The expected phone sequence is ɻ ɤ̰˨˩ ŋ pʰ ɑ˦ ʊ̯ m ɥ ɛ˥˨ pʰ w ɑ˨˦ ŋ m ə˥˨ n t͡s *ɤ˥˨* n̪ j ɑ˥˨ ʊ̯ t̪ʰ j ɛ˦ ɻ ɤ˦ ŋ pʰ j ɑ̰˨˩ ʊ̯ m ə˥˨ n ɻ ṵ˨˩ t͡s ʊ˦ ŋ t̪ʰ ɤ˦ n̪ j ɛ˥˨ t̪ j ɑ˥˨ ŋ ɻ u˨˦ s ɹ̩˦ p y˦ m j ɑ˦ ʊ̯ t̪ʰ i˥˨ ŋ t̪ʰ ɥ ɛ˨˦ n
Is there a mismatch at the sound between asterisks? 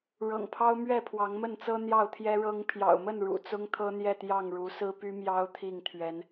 yes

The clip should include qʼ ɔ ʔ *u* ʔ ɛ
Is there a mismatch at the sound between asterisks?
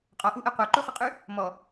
no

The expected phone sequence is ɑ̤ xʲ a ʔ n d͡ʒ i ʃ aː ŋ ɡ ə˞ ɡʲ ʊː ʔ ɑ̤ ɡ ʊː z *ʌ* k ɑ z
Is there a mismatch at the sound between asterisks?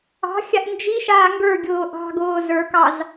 yes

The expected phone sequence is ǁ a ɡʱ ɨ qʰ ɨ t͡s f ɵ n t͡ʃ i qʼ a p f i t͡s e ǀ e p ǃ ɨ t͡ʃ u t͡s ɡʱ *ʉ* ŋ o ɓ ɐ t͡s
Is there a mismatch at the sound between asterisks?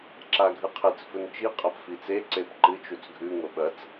no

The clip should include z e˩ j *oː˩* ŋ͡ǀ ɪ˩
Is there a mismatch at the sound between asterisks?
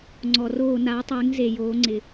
yes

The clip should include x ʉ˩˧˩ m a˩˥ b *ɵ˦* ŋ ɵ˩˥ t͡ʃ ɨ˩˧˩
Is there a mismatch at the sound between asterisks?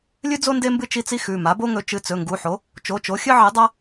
yes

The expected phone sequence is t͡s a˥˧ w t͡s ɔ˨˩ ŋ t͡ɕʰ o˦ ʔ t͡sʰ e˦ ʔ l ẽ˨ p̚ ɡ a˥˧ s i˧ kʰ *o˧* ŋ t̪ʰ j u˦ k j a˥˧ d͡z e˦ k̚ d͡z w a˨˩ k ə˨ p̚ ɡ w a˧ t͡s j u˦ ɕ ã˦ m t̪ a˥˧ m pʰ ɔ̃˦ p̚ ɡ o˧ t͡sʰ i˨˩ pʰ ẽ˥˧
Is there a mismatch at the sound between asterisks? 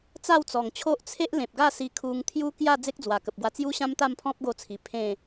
yes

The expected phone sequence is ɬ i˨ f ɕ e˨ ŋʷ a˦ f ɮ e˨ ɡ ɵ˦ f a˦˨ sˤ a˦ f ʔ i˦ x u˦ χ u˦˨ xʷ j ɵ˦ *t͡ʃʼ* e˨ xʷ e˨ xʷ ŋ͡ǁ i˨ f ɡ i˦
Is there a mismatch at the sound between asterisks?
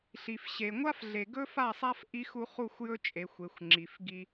no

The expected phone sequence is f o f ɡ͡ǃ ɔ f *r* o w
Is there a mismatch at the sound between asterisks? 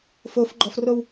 no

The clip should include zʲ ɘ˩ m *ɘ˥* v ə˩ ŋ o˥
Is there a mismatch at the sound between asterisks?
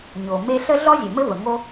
no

